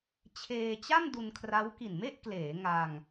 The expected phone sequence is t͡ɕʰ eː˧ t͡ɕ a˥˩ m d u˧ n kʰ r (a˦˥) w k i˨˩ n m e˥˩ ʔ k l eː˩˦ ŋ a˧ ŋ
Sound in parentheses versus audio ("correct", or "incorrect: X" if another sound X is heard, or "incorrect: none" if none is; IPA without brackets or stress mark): correct